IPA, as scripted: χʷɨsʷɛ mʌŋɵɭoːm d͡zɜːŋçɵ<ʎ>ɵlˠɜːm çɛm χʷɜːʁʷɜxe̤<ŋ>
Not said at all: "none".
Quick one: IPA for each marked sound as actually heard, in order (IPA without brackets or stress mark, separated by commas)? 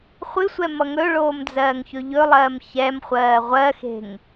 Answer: ʎ, ŋ